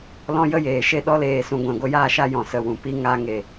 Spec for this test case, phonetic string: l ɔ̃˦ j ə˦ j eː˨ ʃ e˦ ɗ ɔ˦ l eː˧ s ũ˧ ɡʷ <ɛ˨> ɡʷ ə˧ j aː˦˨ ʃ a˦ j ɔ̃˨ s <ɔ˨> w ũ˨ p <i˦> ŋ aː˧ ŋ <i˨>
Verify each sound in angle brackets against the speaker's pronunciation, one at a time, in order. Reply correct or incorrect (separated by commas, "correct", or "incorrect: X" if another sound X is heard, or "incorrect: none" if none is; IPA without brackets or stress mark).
incorrect: ɛ̃˨, incorrect: ə˨, correct, incorrect: e˨